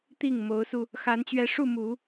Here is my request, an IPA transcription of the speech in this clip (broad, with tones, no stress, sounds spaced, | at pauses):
t̪ i˥˩ ŋ m o˧˥ ʊ̯ s u˧ | x a˧˥ n t͡ɕ ɥ ɛ˧˥ ʂ u˥˩ m u˨˩˦